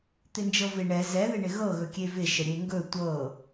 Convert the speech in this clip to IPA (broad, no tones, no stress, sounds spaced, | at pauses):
t̪ ɪ n d͡ʒ ɤ v ɪ ɳ ɛ z ɛ ð ɪ ɳ ɪ ɣ ɤ ɣ ɵ kʲ e v ɪ ʃ ə ɾʲ e ŋ ɡ ɵ tʷ ɤ